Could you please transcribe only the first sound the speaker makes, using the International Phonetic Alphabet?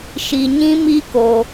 ʃ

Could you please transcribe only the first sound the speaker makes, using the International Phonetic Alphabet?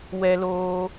w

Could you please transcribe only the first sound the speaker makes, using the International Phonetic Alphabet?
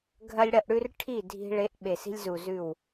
ɡʱ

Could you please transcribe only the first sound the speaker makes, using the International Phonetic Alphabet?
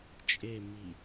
t͡ʃʼ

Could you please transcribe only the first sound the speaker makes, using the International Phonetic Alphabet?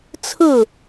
t͡sʰ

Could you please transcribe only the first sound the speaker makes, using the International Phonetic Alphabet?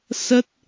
s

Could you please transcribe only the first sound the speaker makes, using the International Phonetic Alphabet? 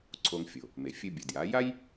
ǀʰ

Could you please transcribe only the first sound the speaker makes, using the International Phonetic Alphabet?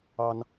ɑ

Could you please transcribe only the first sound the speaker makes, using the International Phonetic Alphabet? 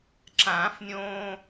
ǁ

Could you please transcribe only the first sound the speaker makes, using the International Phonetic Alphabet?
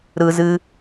ɾ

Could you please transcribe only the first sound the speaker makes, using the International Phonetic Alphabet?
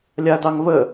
lʲ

